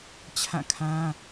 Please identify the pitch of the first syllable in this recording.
falling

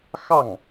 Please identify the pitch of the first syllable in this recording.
falling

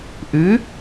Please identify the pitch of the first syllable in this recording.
rising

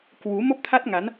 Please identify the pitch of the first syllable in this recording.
rising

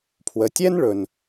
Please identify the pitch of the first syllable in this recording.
low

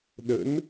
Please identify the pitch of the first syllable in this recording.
rising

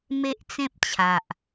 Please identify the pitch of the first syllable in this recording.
high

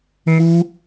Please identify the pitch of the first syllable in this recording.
high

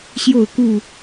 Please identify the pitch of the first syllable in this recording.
falling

